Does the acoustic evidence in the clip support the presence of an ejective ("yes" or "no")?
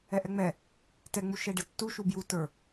no